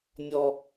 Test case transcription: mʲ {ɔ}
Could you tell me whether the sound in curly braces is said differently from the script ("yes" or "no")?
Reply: no